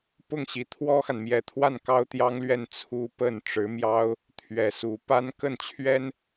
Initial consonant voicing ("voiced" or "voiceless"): voiceless